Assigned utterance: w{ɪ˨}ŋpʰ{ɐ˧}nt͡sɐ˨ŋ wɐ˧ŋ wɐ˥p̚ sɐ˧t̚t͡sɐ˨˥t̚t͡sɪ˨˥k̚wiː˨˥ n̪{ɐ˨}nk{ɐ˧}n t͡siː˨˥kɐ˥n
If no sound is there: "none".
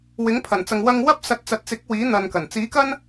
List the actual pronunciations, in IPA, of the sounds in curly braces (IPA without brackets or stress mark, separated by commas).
ɪ˨˥, ɐ˨˩, ɐ˨, ɐ˨˩